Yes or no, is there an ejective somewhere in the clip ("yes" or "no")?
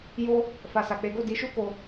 no